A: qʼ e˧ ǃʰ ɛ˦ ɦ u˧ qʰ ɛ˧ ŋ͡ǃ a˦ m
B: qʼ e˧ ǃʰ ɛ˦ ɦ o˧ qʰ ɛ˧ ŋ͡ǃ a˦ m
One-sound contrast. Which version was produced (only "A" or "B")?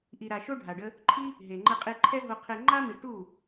B